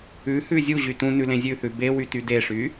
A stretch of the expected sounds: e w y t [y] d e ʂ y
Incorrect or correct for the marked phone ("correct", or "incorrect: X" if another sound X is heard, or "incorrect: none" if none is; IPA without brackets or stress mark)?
correct